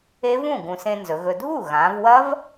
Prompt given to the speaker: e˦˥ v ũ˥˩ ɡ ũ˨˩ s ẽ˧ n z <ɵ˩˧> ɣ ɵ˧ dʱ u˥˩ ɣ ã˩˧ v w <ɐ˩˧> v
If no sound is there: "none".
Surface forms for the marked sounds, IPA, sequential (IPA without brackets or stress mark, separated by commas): ɵ˩˧, ɐ˦˥